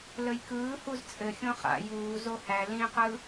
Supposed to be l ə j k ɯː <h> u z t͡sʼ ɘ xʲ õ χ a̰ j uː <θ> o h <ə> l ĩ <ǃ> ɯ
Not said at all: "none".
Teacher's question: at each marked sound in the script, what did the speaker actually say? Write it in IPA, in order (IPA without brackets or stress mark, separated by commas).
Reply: h, z, æ, q